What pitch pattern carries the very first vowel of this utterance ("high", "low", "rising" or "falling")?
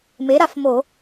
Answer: rising